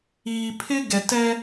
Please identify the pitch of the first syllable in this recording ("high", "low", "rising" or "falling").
low